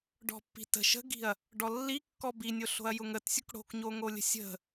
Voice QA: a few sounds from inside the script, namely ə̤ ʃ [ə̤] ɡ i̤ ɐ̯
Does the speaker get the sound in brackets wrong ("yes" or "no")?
no